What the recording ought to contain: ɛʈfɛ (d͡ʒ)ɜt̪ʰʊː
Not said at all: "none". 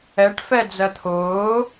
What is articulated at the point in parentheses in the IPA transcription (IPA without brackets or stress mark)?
d͡z